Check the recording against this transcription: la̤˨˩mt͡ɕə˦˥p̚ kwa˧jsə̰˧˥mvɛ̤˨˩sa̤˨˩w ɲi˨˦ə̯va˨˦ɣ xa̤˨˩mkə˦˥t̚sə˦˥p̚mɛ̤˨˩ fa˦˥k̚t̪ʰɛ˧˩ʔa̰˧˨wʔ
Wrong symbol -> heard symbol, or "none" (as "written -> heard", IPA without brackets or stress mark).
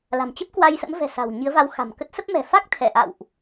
ɣ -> w